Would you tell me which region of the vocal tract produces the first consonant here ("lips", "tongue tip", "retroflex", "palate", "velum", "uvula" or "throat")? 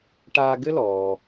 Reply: retroflex